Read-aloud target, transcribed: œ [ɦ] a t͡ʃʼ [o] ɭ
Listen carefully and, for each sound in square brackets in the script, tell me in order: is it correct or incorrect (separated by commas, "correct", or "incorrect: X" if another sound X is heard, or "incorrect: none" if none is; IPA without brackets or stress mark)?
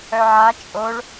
incorrect: ʕ, correct